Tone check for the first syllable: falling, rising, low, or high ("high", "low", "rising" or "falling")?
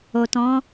low